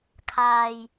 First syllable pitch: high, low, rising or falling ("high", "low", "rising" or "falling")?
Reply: low